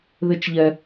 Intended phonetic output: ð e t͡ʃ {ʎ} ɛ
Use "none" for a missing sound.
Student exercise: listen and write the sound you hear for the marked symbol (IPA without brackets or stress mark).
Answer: ʎ